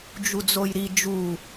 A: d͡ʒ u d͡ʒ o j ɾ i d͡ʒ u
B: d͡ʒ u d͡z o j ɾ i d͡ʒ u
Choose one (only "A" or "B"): B